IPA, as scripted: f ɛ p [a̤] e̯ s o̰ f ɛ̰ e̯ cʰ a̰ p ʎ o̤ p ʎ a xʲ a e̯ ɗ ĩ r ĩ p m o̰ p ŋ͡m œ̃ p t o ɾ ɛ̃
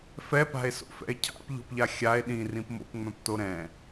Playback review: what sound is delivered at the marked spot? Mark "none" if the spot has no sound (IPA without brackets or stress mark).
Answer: a̤